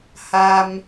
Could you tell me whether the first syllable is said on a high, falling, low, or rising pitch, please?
low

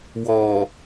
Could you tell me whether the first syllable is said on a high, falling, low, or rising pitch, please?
low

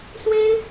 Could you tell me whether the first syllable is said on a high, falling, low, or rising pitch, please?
high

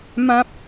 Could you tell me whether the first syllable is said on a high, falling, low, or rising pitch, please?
high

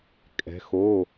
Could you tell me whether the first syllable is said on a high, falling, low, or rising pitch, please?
rising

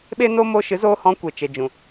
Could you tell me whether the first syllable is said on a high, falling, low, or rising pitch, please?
high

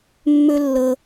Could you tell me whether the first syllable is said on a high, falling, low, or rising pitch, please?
high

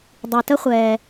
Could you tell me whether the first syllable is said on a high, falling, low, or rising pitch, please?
low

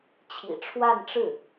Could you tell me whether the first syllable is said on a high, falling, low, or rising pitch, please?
low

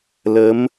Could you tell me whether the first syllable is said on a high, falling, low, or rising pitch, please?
rising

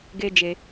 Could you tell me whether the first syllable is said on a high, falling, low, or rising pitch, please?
high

